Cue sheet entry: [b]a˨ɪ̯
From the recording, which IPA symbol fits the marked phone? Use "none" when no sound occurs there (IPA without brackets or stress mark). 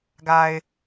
ɡ